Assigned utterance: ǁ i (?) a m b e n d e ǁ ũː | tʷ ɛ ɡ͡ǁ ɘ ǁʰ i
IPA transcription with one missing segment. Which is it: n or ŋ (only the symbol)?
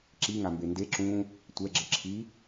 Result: ŋ